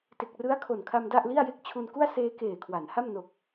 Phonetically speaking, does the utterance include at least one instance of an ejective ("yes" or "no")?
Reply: no